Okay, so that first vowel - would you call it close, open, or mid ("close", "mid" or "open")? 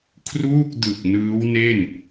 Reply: close